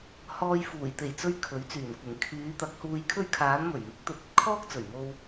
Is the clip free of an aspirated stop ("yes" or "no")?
no